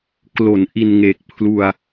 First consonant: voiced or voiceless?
voiceless